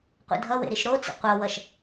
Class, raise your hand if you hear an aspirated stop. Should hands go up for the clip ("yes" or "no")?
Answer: no